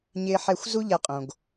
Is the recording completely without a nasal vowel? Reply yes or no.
no